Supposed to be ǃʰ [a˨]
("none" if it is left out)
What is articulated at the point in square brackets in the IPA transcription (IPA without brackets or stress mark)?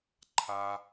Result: a˨